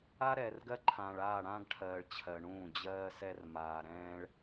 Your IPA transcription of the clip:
a˦ ɾ ɛː˨ r ɡ ɜ˦ ǃʰ ãː˨ ɭ aː˦˨ ɽ ã˦ ɡ ʈʰ ɜː˨ ɭ t͡ɕʰ ɜ˨ ɳ ũː˦˨ d͡ʑ ɜː˦ s ɛ˦ r m aː˨ ɾ ɛ̃ː˦ ɭ

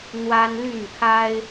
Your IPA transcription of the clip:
n̪ w a˦ n l y˥˨ n kʰ a˦ ɪ̯

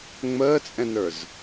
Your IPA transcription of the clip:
ŋ͡m əː t͡sʼ ɛ̃ n ə˞ z

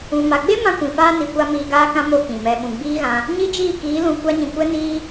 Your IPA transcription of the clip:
ũ˨ m a˨ ɡ͡b e˦ m ã˦ kʷ ĩ˨ f aː˦ n i˨ kʷ a˧ m iː˧ ɡ aː˦ k ã˦ m o˦ k ĩ˨ m ɛ˧ ɓ ũ˧ ɡ͡b iː˦ ɣ ã˧ | ɲ i˦ d͡ʒ iː˦˨ k iː˨˦ l ũ˧ kʷ a˦ ɲ ĩ˧ kʷ ɛ˦ n iː˦

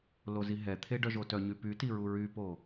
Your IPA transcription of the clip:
l o z i ɦ ɛ t̪ʰ e ɖ œ ʒ o t œ ɲ y p y t i ɹ u ɹ y p o

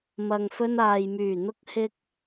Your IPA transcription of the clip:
m ɐ˨ ŋ f ɵ˧ n aː˨ j m yː˨˩ n̪ ʊ˧ k̚ h ɪ˧ k̚

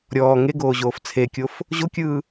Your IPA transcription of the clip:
ɾʲ ɔː ŋ e ɡ oː ʑ oː f t͡sʰ e kʲ o f | ʑ o kʲ ɯː

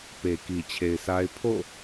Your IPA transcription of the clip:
p e˨ k i˨ t͡ɕʰ e˨ ɪ̯ s a˦ ɪ̯ pʰ o̰˦˨

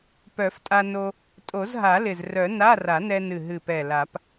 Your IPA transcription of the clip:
p œ˨˩˦ f tʼ a˧ n o˧ | tʼ o˨˩˦ z ɦ a˨˩˦ l ɪ˨˩ z r œ˨˩˦ n a˧˥˧ r a˨˩˦ n ɛ˧ n ɨ˨˩ ɦ ɨ˨˩ p ɛ˨˩ l a˨˩˦ p

